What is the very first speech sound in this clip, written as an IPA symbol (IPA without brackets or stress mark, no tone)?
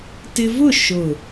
t